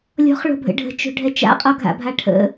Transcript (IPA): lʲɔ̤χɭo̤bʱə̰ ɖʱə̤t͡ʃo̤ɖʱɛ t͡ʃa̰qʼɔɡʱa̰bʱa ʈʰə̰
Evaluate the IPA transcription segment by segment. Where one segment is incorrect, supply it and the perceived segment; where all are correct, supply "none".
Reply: none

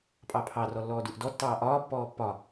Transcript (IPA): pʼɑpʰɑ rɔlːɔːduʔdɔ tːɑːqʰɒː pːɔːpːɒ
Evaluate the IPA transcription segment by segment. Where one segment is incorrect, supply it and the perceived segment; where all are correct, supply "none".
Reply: qʰ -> ʔ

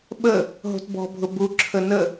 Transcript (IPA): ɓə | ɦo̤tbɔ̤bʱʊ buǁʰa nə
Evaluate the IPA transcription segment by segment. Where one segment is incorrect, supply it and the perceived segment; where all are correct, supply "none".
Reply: a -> ə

